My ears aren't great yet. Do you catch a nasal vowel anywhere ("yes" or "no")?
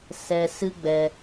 no